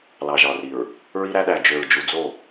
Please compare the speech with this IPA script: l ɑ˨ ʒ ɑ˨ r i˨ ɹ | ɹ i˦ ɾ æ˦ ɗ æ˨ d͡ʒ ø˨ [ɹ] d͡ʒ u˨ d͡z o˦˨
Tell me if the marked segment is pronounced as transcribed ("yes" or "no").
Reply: yes